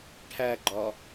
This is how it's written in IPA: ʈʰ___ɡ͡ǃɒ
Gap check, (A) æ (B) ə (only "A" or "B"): A